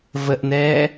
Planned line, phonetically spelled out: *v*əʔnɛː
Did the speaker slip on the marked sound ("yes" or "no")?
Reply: no